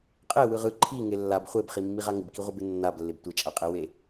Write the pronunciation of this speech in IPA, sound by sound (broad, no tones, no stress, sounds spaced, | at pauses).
qʼ e w ɯ ʁ ɯ ǃʰ i ŋ e lː a b χʷ e b χ i mː i ʁ a ŋ ɪ b k i ʁʷ ɯ b ɪ nː a b lː ɪ b tʷ ɪ t͡ʃʼ a qʼ e w e